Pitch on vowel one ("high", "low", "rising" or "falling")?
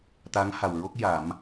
rising